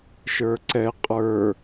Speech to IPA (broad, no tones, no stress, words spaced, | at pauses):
ʃə˞ǀɛ qʼə˞